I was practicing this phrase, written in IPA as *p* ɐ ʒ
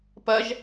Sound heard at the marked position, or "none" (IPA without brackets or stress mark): p